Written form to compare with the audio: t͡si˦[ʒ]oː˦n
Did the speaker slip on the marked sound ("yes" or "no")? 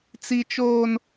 yes